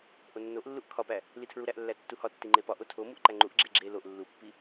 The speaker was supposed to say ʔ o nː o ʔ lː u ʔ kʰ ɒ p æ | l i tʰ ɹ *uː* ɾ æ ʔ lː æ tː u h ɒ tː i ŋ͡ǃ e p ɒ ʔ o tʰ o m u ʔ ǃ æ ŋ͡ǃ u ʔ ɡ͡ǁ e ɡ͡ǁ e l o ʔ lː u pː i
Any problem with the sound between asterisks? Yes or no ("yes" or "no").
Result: yes